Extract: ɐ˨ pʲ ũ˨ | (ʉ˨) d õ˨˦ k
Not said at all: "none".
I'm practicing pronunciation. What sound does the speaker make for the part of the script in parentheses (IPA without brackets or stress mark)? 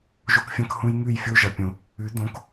ʉ˨˦